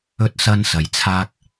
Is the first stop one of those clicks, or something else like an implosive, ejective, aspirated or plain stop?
plain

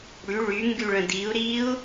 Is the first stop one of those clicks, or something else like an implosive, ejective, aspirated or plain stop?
plain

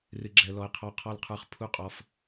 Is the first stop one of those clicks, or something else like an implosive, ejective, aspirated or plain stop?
click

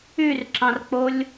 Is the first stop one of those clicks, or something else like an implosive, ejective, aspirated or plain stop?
click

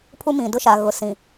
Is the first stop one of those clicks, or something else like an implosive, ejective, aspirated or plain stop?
aspirated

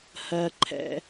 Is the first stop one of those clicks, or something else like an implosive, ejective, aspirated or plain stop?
click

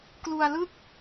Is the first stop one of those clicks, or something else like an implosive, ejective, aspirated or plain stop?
plain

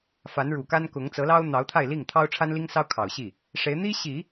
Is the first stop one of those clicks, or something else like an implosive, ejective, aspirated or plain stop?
plain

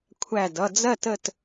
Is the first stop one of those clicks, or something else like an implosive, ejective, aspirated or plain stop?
aspirated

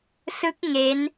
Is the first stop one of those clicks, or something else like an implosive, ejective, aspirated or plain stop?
plain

